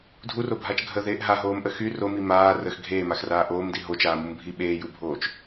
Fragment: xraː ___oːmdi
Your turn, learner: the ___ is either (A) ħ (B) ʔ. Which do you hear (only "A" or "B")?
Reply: B